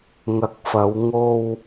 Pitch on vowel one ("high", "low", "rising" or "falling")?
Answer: low